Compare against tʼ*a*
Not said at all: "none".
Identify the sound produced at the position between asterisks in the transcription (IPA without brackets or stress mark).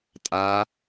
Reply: a